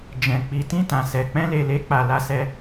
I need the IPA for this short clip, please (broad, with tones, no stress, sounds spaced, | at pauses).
d͡ʒ ɛ̃˨ k͡p i˨˦ t ĩ˦˨ t ã˨ s ɛ˨ k͡p ɛ̃˧ l e˨ l e˧ k͡p a˨ l a˧ s ɛ˧